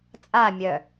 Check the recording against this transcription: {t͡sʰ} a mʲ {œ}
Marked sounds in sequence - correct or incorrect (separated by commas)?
incorrect, correct